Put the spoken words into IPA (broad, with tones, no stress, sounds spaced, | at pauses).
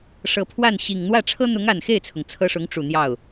ʂ ɤ˨˩ pʰ w a˥˩ n ɕ i˨˩ ŋ n̪ w ä˥˩ ʈ͡ʂʰ ɤ˥ n̪ ʊ˧˥ ŋ a˨˩ n x e˥˩ ɪ̯ t͡sʰ ʊ˩ ŋ t͡sʰ ɤ˥ ʂ ʊ˧˥ ŋ ʈ͡ʂ u˨˩ n̪ j ɑ˥˩ ʊ̯